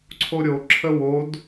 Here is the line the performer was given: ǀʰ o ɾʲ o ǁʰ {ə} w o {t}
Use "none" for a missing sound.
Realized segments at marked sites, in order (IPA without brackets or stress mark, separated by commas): ə, d